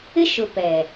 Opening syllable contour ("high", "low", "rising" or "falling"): high